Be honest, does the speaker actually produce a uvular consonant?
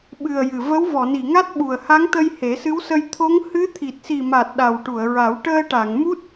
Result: no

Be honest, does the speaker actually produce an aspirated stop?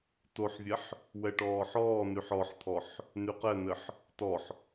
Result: yes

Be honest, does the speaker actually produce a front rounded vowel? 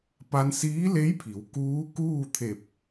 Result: no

